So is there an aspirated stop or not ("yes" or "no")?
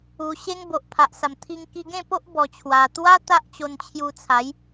yes